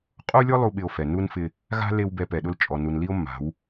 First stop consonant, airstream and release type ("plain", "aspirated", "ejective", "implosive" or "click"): ejective